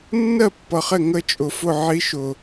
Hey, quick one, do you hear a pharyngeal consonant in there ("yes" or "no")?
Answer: yes